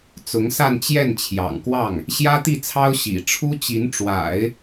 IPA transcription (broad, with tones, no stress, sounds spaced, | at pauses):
t͡s ʊ˧˥ ŋ s a˥˧ n t͡ɕ j ɛ˥˩ n t͡ɕʰ j ɑ̰˨˩ ŋ k w ɑ˥˩ ŋ | ɕ j ä˥ t̪ i˥˩ t͡sʰ ɑ˥ ʊ̯ ɕ ḭ˨˩ ʈ͡ʂʰ u˥ t͡ɕ i˧˥ n ʈ͡ʂ w a̰˨˩˦ ɪ̯